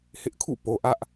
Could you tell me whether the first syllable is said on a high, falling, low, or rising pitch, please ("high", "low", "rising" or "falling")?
high